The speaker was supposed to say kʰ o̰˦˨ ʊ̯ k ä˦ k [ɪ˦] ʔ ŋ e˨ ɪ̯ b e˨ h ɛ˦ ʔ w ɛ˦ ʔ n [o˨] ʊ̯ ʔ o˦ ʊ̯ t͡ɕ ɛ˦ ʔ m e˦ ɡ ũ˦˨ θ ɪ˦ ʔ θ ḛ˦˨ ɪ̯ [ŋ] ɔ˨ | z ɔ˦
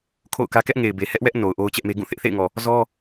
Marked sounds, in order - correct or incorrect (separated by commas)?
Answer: incorrect, correct, correct